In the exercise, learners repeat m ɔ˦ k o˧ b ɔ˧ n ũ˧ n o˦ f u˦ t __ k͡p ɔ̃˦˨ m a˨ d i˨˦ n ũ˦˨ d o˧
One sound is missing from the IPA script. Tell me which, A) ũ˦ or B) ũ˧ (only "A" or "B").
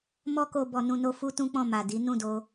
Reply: A